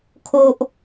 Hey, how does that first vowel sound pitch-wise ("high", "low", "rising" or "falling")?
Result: high